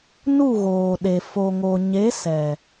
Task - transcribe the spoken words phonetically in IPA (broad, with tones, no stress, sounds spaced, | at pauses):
n u˦˨ ɣ oː˨ ɗ e˨ f o˨ ŋ o˨ ɲ e˨˦ s ɛ˨